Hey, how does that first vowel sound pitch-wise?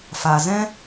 low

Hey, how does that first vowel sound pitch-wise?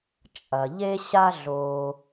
low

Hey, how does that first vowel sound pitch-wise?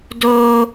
high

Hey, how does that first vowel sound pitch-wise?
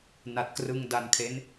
low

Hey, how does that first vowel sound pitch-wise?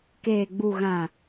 low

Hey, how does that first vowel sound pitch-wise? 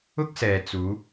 high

